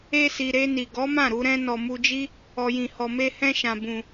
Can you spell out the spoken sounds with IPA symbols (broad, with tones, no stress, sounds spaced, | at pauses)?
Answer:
e˧ s i˨ ɾ e˧ n i˨ ɡ ɔ˨˦ m ã˦˨ ɾ u˧ ɾ ɛ̃˧ n ɔ˨ m u˧ d͡ʒ i˦ | ɔ˨ j ĩ˨ h ɔ˨ m e˧ h ɛ̃˧ ʃ ã˨ b ũ˨